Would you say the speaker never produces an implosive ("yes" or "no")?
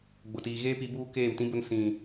yes